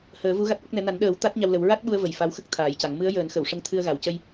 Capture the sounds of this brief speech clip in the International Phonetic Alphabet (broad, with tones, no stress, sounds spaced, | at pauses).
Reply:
h əː˨˩˦ v u˧˥ ɣ a˦˥ t̚ ʔ ə˦˥ k̚ n ɛ˧˥ n a˨˩˦ n ɗ əː˨˩˦ w t̪ a˦˥ t̚ ɲ a˧ w l ə˨˩˦ w ɹ a˦˥ t̚ ɓ u˧ ə̯ v ə˨˩ j f a˧˥ w x ə˦˥ k̚ t̪ʰ aː˨˩˦ j c a˨˩˦ ŋ m ɨ˧˥ ə̯ j əː˨˩˦ n x ə˨˩˨ w ʂ ə˧ ŋ t̪ʰ ɨ˧ ə̯ ɣ a˨˩ w c ə˧ j